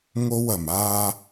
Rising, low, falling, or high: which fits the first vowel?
high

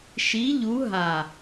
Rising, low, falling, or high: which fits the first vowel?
rising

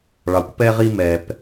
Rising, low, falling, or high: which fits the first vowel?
low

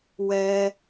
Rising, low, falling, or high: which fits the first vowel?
high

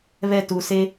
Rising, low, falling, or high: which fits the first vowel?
falling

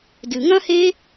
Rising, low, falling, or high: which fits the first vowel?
low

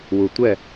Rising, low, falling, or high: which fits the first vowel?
low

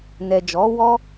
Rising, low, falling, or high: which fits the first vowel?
low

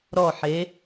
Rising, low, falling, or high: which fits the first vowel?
falling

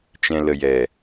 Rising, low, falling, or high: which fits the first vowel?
low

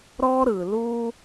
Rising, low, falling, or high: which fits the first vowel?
high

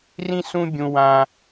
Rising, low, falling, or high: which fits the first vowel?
high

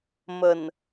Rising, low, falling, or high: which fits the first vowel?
low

